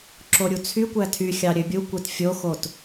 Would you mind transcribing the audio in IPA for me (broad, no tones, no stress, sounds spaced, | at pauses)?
ǁ o ɾʲ u t͡sʰ y kʷ æ tʰ y xʲ ɑ ɾʲ ø bʲ u kʷ e t fʲ o x o t